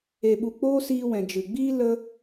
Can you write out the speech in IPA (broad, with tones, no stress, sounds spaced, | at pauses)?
e˧ ɓ u˧ k͡p oː˦ s iː˧ w ɛ̃˨ d͡ʒ ɨ˨ ɡ͡b iː˦ l ə˦